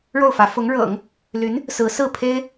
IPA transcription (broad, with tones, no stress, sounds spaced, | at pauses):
ɻ o˥˩ ʊ̯ f ä˧˥ f ʊ˧˥ ŋ ɻ ɤ̰˨˩˦ ŋ | l y˧˥ n | s ɹ̩˧˥ s ɹ̩˥˩ pʰ e˥ ɪ̯